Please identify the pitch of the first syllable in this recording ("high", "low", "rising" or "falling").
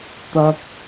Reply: high